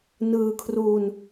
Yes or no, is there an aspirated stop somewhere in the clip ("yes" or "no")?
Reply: yes